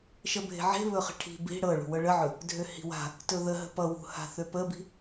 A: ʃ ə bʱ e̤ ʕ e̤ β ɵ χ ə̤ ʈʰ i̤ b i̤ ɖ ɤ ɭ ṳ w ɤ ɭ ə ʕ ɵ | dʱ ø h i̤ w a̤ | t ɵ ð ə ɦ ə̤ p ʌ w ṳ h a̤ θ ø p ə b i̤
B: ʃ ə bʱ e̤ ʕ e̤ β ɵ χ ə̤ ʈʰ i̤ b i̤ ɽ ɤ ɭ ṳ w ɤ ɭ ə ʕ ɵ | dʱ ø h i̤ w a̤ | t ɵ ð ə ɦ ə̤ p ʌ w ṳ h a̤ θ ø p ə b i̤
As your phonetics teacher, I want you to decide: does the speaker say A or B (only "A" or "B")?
B